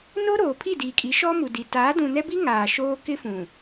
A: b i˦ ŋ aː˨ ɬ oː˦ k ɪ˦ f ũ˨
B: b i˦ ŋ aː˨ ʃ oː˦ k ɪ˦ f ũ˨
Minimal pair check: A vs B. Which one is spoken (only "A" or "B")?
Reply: B